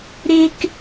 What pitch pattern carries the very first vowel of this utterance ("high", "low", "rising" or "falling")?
high